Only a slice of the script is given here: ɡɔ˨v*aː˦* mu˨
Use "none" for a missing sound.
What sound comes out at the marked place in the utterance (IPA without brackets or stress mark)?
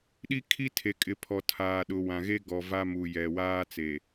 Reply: a˦